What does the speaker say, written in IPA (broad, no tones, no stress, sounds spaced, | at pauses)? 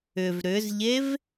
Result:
ʏ v ɾ ʏ z ʎ e v